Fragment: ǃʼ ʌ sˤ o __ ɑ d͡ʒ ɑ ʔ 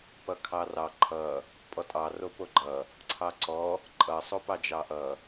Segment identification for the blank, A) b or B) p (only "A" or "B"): B